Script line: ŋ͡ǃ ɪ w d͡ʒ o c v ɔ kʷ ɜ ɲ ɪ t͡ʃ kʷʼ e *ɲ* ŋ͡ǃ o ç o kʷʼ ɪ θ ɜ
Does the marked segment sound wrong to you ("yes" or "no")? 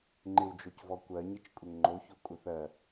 yes